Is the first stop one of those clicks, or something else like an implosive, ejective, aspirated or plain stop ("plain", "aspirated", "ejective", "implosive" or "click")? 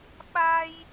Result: implosive